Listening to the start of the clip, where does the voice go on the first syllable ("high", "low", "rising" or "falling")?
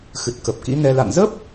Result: low